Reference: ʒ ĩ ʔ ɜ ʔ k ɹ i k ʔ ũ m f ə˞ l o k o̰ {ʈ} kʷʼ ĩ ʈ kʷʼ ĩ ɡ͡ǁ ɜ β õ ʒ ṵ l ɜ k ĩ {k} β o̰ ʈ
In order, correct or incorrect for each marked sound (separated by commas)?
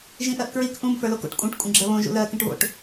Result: correct, incorrect